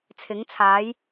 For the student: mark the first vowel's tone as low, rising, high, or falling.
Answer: rising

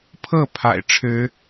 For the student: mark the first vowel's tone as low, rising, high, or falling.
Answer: falling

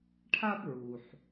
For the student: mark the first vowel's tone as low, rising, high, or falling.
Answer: high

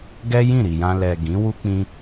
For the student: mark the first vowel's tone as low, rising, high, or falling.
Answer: high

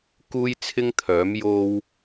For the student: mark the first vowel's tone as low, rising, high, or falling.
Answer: high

